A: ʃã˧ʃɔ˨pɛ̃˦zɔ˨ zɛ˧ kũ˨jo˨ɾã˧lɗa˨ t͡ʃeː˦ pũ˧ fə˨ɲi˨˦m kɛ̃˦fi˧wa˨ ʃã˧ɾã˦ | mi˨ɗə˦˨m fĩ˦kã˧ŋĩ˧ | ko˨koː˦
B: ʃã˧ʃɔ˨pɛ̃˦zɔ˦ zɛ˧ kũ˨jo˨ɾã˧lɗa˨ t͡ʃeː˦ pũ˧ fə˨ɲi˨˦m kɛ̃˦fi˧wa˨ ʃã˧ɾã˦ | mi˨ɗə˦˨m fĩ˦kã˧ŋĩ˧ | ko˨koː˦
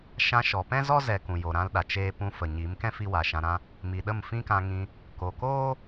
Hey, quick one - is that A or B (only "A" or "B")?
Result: B